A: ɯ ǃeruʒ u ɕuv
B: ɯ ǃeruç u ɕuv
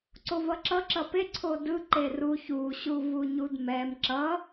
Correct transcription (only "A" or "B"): B